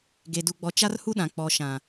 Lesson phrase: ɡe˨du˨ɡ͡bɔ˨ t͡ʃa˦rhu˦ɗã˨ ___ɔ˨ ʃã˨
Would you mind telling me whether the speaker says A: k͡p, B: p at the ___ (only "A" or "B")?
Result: A